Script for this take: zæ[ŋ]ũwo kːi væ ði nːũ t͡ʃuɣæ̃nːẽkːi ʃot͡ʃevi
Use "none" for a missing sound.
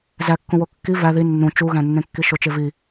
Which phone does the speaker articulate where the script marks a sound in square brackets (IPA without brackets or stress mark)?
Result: kː